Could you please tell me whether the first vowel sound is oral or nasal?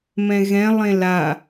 nasal